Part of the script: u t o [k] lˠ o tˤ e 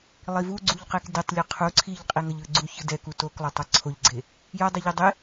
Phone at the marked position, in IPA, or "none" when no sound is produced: k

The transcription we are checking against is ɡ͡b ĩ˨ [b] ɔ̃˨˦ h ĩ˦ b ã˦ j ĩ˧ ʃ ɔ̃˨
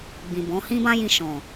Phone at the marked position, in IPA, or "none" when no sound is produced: b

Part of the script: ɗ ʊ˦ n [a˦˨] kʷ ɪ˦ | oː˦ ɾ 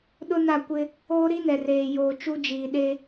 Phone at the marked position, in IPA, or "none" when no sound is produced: a˦˨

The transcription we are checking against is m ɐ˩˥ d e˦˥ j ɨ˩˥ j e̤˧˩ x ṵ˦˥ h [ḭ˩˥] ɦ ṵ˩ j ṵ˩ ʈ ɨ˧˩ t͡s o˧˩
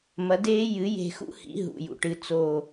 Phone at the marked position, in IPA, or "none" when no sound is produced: ḭ˩˥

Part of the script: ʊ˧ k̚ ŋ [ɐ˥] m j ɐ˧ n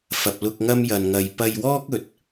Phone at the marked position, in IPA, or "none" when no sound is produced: ɐ˥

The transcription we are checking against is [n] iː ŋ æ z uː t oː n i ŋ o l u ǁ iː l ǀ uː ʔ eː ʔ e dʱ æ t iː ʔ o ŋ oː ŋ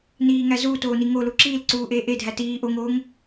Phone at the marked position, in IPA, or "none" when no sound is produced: n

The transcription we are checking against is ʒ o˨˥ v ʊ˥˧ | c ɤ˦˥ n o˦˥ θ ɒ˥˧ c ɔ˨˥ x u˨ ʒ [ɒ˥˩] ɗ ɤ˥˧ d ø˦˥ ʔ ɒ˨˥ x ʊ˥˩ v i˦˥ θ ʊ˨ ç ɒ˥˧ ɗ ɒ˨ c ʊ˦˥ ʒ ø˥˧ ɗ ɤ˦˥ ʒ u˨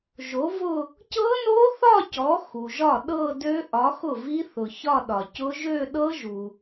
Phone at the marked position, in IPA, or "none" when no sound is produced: ɒ˥˩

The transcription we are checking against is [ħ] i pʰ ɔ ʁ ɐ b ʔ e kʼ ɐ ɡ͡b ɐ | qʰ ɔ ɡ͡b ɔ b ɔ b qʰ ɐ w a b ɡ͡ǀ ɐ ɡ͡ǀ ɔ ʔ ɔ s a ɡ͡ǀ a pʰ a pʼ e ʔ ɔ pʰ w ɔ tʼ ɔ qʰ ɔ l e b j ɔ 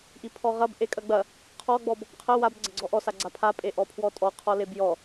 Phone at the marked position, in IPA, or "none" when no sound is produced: ʔ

